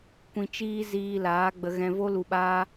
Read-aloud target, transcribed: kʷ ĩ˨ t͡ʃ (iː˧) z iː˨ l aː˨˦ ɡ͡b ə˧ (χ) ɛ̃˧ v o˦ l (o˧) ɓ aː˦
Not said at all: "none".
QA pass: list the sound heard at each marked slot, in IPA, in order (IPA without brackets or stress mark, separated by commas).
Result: iː˧, ɣ, u˧